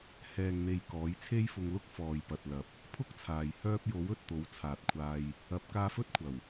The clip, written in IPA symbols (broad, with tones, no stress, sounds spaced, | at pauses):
h ɛː˨ ŋ n̪ e˨ j k ɔː˨˥ j t͡sʰ e˥ j f ʊ˧ ŋ l ʊ˥ k̚ f ɔː˨ j p ɐ˨ t̚ l ɐ˨ p̚ | pʰ ʊ˥ k̚ t͡sʰ aː˨ j h œː˧ p̚ j o˨˥ w ɵ˧ t̚ t̪ o˨˥ w t͡sʰ aː˨ t̚ kʷʰ aː˧ j | ɐ˨˥ p̚ k aː˧ f ɵ˥ t̚ kʷʰ ɐ˨˩ w